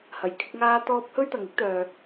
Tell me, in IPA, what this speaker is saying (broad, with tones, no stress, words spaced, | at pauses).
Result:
hɐ˨j kʰɪ˧k̚ ŋaː˥t̪ɔː˥p̚ hɵ˥ɥt̪ɐ˨ŋɪ˥k̚t̪œː˨